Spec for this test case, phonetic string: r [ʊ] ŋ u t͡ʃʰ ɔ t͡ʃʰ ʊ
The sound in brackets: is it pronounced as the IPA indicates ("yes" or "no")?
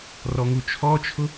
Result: no